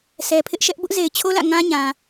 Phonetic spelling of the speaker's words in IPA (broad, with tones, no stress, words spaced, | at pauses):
sʰɛ˨pʰɪ˦ʔʃɛ˦ʔ bʊ˦ʔ ze˨ɪ̯t͡ɕʰo˦lä̰˦˨ ŋã˦ɲã˨